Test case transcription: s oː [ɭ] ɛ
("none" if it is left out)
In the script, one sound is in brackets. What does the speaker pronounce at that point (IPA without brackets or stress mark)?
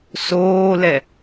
l